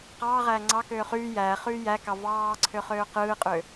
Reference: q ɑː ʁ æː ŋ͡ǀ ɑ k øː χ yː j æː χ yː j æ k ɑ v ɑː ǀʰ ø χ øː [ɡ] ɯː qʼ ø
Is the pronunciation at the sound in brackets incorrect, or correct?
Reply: incorrect: q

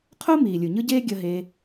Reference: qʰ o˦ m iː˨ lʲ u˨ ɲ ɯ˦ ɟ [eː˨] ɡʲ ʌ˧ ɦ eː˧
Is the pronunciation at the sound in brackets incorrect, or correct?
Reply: incorrect: eː˦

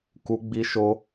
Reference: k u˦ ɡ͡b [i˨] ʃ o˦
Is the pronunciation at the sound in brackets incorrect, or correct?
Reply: incorrect: i˦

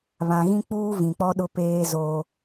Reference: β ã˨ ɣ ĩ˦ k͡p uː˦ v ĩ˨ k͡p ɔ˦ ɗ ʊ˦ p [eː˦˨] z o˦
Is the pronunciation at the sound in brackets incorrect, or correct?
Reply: incorrect: eː˦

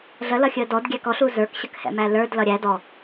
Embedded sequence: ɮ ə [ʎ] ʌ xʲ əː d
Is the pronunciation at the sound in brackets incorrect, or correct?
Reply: incorrect: l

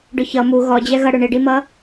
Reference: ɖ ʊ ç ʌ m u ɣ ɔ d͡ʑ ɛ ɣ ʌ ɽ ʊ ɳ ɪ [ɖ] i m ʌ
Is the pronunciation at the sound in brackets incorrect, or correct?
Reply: correct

